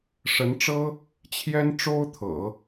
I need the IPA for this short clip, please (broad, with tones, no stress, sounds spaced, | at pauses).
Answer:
ʂ ə˧˥ n ʈ͡ʂ ɤ˥ | t͡ɕʰ j ɛ˥ n ʈ͡ʂ o˥ ʊ̯ t̪ʰ ɤ̰˨˩˦